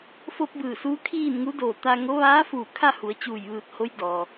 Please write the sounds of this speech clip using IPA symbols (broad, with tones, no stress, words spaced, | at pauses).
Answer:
fo˧p̚ bɯː˧˩suː˧˥ kʰiː˥˨nŋu˧˥ doː˧˩t̪a˧ ŋo˧˥ ʋaː˧˥fuː˧˩ kʰa˥˨hu˩˧ə̯ t͡ɕuː˧˩jʋɯː˧˩t̚ho˧˥j dɔː˩